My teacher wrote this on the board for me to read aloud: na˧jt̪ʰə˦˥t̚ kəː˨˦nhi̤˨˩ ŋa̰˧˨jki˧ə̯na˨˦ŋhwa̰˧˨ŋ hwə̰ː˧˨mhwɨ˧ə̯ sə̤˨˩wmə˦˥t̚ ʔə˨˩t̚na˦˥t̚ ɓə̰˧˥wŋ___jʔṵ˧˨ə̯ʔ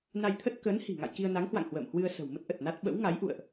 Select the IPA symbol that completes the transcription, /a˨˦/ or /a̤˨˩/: a˨˦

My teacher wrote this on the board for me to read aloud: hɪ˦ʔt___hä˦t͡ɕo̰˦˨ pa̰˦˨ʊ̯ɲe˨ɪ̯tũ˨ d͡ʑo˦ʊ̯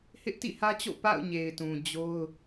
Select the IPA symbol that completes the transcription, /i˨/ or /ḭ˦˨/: ḭ˦˨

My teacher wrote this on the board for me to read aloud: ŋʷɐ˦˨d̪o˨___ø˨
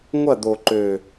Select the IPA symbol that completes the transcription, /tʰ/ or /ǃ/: ǃ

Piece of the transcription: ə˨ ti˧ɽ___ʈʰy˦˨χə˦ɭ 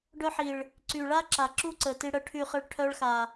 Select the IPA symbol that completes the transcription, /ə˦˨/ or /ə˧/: ə˦˨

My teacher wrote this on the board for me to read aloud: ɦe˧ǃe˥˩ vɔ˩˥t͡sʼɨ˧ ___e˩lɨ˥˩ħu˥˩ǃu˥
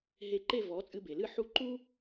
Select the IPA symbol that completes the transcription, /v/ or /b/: b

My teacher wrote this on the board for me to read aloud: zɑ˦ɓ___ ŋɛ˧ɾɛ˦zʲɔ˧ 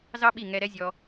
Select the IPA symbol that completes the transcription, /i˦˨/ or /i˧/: i˦˨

